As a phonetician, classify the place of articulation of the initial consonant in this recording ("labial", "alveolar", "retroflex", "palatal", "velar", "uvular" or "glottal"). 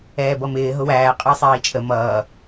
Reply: labial